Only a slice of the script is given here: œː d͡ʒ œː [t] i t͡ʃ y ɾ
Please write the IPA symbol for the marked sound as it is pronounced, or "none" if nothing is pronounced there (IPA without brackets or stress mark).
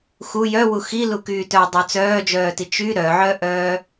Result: t